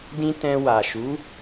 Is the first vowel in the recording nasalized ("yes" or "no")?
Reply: yes